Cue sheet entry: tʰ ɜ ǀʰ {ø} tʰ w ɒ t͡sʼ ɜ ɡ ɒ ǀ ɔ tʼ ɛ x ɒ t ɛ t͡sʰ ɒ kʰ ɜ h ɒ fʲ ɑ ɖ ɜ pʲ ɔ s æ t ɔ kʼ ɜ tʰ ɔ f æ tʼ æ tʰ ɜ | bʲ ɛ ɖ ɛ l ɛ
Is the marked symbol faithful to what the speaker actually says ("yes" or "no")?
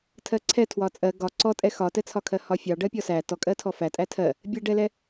no